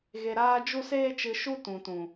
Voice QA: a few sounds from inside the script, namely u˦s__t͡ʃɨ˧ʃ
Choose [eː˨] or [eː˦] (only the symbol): eː˦